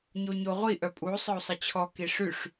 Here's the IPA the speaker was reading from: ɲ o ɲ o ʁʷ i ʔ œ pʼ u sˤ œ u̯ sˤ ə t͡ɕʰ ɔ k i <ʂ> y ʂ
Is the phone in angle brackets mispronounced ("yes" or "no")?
no